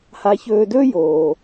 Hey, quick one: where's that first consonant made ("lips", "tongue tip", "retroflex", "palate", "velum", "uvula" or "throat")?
throat